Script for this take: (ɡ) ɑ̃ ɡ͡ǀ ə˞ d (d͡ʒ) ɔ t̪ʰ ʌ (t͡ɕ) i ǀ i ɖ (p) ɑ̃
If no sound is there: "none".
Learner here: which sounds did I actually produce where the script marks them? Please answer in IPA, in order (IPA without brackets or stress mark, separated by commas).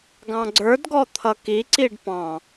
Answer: ɡ, ɡ, k, p